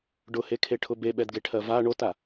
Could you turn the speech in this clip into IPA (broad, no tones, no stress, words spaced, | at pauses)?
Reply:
ɖʊhekʰeʈʰʊ beɓɛdɡeʈʰɜ va ɳota